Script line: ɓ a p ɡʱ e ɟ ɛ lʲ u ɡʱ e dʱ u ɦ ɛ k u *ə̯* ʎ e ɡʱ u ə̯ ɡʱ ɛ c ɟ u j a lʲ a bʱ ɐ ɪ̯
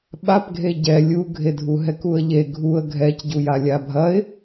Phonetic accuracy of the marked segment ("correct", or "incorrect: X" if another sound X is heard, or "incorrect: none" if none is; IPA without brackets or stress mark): correct